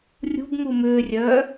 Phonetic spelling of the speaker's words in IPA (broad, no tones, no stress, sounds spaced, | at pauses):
rʲ ṳ b m u m ʏː rʲ œː